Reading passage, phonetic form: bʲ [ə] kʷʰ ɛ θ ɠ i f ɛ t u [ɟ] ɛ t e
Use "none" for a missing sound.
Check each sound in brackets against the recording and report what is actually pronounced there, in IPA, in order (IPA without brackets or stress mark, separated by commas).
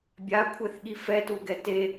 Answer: a, ɡ